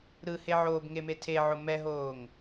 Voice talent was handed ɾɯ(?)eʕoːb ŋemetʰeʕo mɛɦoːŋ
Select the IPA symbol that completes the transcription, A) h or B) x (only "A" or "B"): A